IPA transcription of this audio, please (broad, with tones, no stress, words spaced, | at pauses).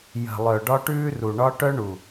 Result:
jə̤˨lˠœ˨ ɖɒ˦ʈʉː˦ru˨ɳɒ˦ ʈœ˦ɳu˨